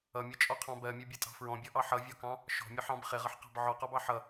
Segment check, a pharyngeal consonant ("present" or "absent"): present